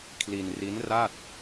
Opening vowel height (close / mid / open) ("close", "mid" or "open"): close